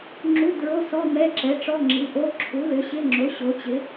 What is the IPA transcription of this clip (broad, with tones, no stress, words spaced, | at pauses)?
ŋ͡ǁu˧˥˧ dɹo˧˥˧sɔ˧˥˧ mɛ˧˥˧ǁɛ˩˥ʈ͡ʂɔ˧˥˧ ŋ͡ǁi˩˥ʔo˧˥˧ ǁʰu˩˥lʏ˩˥ɕɪ˧˥˧ŋ͡ǁo˩˥ ɕo˩˥t͡ɕɪ˩˥